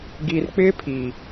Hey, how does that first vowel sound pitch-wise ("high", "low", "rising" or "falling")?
low